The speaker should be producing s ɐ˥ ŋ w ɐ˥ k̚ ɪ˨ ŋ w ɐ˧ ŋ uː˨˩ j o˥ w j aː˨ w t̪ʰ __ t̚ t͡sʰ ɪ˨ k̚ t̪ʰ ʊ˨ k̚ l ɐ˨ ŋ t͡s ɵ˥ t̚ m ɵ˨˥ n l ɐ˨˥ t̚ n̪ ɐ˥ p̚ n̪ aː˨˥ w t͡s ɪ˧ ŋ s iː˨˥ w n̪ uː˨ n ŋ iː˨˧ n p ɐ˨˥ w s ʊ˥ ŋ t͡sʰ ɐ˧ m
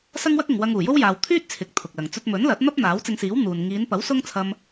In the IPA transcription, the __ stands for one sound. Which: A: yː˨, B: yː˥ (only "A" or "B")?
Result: B